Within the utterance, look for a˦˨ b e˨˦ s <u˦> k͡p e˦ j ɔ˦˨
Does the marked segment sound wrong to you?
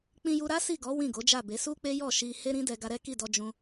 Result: no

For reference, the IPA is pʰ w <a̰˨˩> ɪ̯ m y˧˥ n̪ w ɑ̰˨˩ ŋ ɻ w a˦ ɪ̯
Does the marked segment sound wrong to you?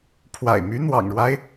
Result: no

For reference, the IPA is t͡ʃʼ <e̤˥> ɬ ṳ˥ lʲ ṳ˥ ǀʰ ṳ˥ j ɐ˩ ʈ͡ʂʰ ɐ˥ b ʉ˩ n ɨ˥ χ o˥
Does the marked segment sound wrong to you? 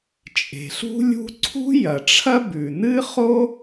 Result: yes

